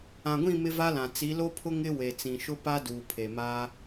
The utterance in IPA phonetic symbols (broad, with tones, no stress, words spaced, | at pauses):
ã˨ɡʷĩ˦˨ mɪ˦va˦lã˨ t͡si˨˦lo˦pʰʊ˦ ŋɪ˦ we˨t͡sĩ˨ʃʊ˦pa˦ duː˨pʰe˨ maː˦